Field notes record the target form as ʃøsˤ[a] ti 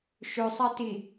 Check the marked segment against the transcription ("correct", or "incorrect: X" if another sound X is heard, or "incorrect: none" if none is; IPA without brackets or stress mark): correct